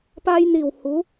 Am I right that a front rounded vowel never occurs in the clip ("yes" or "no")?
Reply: yes